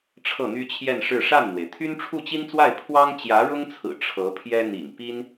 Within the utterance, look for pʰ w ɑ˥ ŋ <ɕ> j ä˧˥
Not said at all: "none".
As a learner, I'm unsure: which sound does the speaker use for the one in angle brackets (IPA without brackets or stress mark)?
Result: t͡ɕ